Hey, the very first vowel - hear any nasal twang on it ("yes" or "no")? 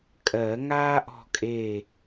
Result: no